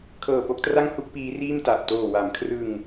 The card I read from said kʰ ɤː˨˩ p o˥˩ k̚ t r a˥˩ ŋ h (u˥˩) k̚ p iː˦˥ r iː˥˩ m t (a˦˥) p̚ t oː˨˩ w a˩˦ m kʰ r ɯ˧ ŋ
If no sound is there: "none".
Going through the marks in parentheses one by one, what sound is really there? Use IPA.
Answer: u˥˩, a˨˩

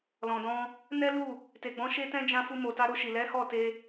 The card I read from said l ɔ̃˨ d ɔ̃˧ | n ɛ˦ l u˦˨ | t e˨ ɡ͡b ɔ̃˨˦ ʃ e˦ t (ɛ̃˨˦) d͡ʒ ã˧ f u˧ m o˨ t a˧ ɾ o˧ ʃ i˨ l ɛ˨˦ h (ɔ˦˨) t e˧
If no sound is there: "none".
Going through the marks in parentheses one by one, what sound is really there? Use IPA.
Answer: ɛ̃˦, ɔ˦˨

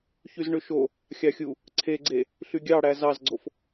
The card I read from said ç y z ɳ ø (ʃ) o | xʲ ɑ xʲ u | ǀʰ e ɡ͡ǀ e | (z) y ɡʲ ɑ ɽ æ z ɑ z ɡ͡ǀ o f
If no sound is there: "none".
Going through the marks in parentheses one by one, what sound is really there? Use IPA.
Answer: ʃ, ɬ

